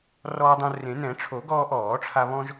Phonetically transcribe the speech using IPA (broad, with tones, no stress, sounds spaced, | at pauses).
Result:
r ɔː˦ dˤ õ˦ r ẽ˨˩˦ n ɛ̃˨˩˦ ʈ͡ʂʰ o˨˩˦ ɡ ɔː˦ ʔ ɔː˨˩˦ ʈ͡ʂʰ a˦ β ɔ̃˦ ʒ